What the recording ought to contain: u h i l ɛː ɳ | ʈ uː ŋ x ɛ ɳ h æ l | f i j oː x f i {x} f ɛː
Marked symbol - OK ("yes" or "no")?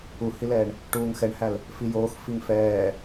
no